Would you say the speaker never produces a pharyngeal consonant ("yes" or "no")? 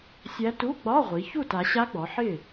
no